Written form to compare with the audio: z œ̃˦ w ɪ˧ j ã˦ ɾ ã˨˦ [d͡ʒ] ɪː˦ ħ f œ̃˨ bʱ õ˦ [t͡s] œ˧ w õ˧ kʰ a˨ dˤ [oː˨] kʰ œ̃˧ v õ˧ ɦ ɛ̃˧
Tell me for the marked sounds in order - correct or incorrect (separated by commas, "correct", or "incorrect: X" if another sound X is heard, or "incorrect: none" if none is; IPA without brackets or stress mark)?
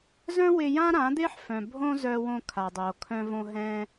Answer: incorrect: d̪, incorrect: z, correct